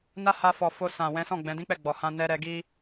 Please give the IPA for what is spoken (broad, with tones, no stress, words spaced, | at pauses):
na˦ ha˧fɔ˨ fo˧ sã˨wɛ̃˨˦ sɔ̃˦˨ɡ͡bɛ̃˨˦dĩ˦k͡pɛ˦˨ ɡ͡bɔ˨hã˧ nɛ˧ɾɛ˧ ɡi˦